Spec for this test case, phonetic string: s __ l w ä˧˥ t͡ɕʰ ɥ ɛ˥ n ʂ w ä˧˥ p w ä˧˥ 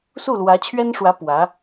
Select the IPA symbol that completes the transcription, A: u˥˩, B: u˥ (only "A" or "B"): A